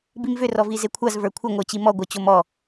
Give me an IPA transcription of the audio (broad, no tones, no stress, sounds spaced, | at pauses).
b i m v ʏ r ɔ v i z e kʷʰ a z v ə˞ kʷʰ ɘ ŋʷ ə˞ t͡ɕ i m ɔ ɡʷ ə˞ t͡ɕ o m ɔ